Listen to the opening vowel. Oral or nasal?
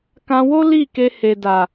nasal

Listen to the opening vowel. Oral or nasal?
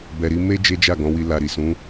oral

